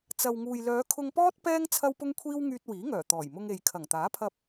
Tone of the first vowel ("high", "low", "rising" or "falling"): low